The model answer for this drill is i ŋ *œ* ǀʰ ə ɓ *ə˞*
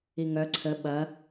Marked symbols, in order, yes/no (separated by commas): yes, no